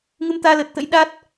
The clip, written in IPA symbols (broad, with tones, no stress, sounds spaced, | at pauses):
ŋ ɨ˧ m t̪ aː˧ l əː˨˩ t̚ t̪ ə̰˧˥ j ɗ a˦˥ t̚